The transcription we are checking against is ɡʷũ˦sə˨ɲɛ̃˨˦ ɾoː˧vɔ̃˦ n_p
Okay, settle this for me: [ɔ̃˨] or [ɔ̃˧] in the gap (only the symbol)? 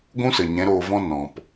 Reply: ɔ̃˨